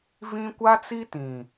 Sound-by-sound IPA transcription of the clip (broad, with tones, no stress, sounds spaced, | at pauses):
v ĩ˦ kʷ a˦ t͡s i˦ t ĩ˨